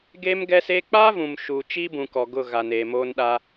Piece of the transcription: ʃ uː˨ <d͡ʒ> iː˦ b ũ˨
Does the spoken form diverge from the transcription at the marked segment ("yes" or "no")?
yes